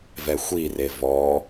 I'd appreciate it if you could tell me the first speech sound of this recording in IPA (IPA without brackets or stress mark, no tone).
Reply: v